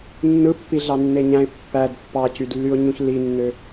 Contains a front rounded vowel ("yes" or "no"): yes